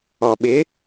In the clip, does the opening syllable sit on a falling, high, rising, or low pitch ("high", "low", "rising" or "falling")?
low